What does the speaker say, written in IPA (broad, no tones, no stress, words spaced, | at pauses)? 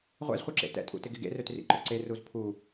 ʁʷɛ̰zχʷœǁḛ tɛ̰tʼṵtɪɡɪ ɡḛrøtrḭǃʊ ǀeruz pʰu